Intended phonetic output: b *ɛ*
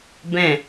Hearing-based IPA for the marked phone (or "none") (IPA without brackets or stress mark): ɛ̃